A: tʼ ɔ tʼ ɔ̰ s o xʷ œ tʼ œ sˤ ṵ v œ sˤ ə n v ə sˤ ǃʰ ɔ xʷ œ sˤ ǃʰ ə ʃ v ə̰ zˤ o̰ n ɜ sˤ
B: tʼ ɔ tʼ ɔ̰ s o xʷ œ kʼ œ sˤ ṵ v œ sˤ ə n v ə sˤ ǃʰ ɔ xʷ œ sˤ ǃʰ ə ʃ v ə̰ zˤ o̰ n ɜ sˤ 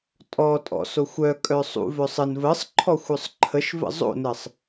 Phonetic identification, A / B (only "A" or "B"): B